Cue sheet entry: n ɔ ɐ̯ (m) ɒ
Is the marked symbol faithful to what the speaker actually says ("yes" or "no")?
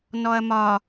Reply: yes